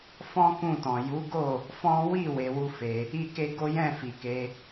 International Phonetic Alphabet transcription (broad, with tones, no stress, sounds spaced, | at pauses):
f ɔ̃˦ k ũ˦˨ t ɔ̃˨ j u˨˦ ɡ o˦˨ | f ɔ̃˦ w i˦˨ w e˧ w u˦ f e˧ | i˦ k e˦ ɡ o˦ j ɛ̃˦˨ f i˨ k e˧